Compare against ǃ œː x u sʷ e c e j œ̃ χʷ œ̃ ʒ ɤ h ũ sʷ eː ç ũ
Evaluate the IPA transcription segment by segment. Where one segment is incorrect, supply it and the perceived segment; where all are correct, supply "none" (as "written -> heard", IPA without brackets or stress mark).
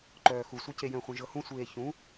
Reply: none